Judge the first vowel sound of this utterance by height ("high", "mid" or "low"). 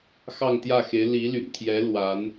low